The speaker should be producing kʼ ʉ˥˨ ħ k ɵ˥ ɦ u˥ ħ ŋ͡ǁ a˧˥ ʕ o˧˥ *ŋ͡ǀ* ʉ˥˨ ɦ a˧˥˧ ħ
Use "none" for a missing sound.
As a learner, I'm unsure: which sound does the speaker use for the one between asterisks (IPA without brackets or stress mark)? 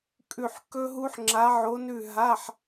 n